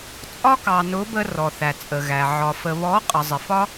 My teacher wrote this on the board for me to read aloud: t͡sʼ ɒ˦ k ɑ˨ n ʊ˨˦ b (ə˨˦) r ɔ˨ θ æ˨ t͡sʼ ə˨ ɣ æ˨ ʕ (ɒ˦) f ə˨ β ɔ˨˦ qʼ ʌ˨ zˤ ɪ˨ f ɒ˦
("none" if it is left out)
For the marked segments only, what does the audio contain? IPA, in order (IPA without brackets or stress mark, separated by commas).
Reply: ə˧, ɒ˨